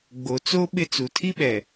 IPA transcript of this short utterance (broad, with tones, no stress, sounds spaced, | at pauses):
ɡ͡b o˨ t͡s o˦ ɓ ɪ˦ t͡s u˨ tʰ i˦ ɓ ɛ˨